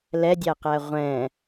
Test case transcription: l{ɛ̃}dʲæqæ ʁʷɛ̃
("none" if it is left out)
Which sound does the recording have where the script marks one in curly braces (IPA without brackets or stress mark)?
ɛ